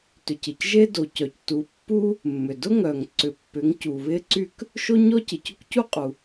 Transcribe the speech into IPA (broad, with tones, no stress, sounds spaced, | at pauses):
t ʏ˨ c ɪ˨ c ʒ e˥ d o˨ c œ˨ c t u˨˥ pː u˥ | mː ʏ˨ d ʊ˥ ŋ œ˨ ŋ ǀ ʏ˨ pː ʏ˨˥ ŋ c u˨ β ɪ˥ ǀ y˥ k | ʃ o˥ ɲ ɔ˥ c ɪ˨ c ʊ˥ k c u˥ qʼ u˨